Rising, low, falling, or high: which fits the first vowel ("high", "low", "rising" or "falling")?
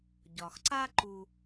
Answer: low